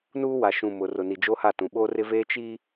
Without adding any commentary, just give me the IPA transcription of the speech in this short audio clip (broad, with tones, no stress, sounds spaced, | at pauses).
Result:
n uː˦ w a˨ ʃ ũ˨ m ʊ˨ r ʊ˨ n i˨ d͡ʒ o˦ h a˦˨ t ũ˨ ɓ o˦ r ɪ˦ v eː˦ t͡ʃ i˦